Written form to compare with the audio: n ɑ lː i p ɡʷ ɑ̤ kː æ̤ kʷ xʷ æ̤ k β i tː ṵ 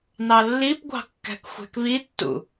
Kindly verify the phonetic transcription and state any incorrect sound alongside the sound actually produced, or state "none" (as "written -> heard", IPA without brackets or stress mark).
kʷ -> k